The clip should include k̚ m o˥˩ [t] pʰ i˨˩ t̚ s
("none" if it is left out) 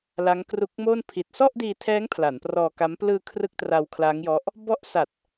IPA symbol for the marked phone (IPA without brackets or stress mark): n